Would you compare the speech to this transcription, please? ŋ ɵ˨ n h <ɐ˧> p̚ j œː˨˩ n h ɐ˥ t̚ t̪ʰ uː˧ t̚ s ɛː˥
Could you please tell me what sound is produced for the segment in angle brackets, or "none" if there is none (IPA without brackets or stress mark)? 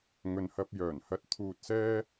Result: ɐ˧